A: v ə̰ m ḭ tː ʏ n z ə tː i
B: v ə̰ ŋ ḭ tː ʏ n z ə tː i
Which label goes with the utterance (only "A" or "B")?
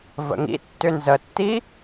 B